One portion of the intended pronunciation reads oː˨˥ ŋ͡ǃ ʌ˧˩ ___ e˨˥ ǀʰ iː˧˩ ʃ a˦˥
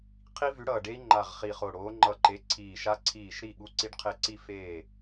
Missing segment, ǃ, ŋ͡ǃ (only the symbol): ǃ